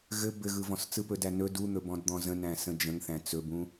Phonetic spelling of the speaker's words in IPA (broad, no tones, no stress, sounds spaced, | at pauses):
ɣ ɘ b ɘ ɣ ɯ v ɔ̃ s t͡s ɯ p ɵ d æ n ɵ d u n̪ ɵ b ɔ̃ d d̪ ɔ̃ z ə̃ n æ̃ s ə̃ d͡ʒ ə̃ ŋ θ æ̃ t͡s ɵ b ũ